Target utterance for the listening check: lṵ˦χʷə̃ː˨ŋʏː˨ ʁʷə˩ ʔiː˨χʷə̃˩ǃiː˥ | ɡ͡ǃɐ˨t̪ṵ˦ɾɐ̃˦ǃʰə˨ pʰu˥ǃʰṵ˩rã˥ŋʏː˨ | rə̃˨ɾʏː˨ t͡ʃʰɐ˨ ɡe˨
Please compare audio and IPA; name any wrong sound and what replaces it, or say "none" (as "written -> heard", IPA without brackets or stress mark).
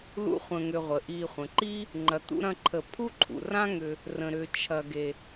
ɡ͡ǃ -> ŋ͡ǃ